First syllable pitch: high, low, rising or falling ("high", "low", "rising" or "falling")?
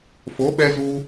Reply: rising